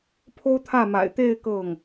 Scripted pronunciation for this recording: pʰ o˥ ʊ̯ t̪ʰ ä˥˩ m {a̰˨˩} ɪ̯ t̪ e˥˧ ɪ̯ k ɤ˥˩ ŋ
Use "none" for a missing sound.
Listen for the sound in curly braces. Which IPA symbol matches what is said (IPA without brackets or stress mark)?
a̰˨˩